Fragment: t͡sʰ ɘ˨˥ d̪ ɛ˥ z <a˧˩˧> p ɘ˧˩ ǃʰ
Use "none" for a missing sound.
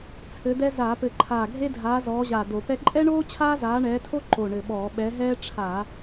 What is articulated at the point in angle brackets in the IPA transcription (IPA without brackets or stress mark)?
a˧˩˧